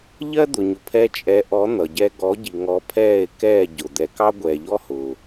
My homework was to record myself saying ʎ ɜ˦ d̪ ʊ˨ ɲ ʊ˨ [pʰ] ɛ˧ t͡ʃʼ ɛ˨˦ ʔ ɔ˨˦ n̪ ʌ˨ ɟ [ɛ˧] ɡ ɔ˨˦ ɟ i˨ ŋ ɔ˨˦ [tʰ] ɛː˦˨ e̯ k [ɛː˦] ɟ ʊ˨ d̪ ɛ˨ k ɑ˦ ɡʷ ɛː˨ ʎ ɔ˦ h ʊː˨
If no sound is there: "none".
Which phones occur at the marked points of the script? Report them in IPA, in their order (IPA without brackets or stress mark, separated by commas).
pʰ, ɛ˧, pʰ, ɛː˦˨